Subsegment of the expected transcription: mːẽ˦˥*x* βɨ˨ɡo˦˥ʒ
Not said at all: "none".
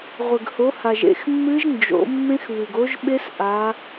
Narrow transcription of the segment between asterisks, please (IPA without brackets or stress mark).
x